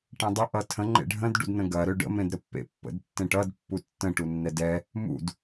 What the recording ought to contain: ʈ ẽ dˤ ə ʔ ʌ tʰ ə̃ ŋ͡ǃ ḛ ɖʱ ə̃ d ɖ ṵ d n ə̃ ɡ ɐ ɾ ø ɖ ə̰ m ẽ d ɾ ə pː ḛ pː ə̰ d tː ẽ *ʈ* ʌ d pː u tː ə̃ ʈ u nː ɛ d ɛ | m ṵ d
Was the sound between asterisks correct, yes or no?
yes